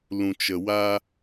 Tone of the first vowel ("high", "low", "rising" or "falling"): low